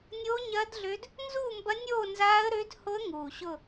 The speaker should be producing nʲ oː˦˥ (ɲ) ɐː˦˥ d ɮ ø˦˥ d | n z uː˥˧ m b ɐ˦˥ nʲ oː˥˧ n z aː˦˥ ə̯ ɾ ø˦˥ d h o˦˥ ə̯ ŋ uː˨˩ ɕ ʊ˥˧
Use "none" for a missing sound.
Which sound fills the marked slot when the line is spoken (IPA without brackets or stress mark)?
ɲ